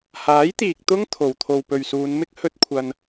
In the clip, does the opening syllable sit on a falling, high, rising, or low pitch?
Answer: rising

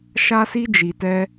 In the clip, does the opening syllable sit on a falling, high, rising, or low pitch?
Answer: high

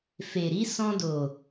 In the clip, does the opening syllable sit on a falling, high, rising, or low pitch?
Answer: low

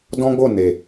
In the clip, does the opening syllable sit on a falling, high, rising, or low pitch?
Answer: high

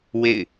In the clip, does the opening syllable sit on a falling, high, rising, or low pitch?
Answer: falling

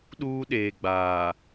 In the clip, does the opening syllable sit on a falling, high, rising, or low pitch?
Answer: high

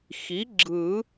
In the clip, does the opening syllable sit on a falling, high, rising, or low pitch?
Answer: rising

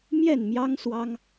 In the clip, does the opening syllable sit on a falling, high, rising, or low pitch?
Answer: falling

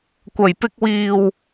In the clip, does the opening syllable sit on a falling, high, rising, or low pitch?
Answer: low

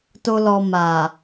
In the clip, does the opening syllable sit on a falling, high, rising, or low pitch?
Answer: high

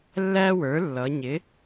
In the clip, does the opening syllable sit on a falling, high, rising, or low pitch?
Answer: high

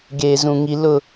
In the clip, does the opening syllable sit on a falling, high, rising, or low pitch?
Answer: low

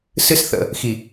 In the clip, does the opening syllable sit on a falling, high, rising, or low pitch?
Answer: high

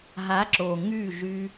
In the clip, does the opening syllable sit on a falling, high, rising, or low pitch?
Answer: rising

